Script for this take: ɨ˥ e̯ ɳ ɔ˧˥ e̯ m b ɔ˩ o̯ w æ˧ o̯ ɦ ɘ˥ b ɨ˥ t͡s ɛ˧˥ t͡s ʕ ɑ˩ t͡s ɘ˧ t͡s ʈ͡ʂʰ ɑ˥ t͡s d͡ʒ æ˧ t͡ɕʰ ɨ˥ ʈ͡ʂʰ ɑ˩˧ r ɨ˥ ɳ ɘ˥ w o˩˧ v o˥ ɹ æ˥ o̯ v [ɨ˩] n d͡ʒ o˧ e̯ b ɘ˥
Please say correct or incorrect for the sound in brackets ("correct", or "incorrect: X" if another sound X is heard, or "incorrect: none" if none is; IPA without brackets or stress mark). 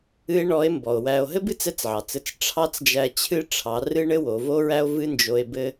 incorrect: ɨ˥